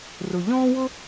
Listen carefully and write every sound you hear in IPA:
rʊ˩ ʎɔ̃ː˥wʊ˥

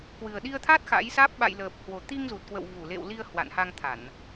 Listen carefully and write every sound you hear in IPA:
kwɨ˨˩ə̯ɗi˧ə̯t̪ʰa˦˥t̚ xa̰˧˥jsaː˦˥p̚ ɓa̰˧˨jləː˨˩p̚ hwo˨˩t̪i˧ŋzu˨˩t̚kwə̰˧˨w vu˧˩lḛ˧˨w li˧ə̯ hwa̰˧˨nha˧ŋt̪ʰa˧˩˨n

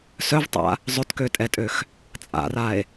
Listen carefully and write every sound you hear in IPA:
sœvtˤa̰ | zˤøtkøtʼɛtʼøx | t͡sʼa̰rae̯

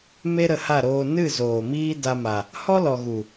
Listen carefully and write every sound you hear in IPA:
me˦ɾə˧ha˦˨ɾoː˧ nɨ˦˨zoː˨ miː˦da˧ma˨ | hɔ˦lɔ˨ ɣu˨

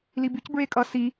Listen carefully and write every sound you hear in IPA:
libyc bɹekʼʌ si

